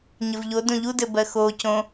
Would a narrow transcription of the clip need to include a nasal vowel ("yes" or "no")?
yes